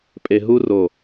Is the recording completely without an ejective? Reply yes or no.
no